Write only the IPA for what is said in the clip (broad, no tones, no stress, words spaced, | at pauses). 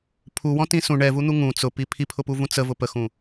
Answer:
pʰuwɔ̃tĩ sũ ɳɛvun̪u ŋũ t͡sʊpi pʰipʰʊpuvũ t͡səvʊ pəxũ